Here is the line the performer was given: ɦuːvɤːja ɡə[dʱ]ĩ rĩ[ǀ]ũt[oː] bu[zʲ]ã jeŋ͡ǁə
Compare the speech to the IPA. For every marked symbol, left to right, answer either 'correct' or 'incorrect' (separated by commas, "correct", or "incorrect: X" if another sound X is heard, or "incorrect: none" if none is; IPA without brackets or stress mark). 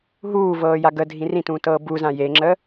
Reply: correct, incorrect: t, incorrect: ɤː, incorrect: z